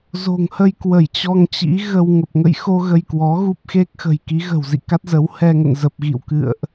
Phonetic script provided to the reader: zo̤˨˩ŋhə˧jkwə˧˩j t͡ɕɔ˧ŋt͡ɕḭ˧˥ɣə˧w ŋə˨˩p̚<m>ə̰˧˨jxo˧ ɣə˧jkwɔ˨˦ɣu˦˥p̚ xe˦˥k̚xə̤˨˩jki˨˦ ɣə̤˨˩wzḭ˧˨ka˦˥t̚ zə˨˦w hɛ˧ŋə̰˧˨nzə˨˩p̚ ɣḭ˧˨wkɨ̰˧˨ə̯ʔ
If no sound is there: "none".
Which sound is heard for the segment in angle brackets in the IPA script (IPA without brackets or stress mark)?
ŋ